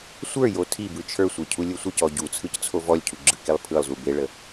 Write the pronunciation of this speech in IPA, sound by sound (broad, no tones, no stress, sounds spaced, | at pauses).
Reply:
sʷ ə˞ j o tʰ i b ɯ t͡ʃʰ ə˞ sʷ e cʰ u lʲ ɯ sʷ ə c ɔ ɟ u t͡sʰ ɯ c t͡sʰ o v ɔ lʲ cʰ u ɡ͡ǁ ɯ k e lˠ pʰ ɯ lˠ z u b e ɭ ə